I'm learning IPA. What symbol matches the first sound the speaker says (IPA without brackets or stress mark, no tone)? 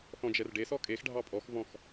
θ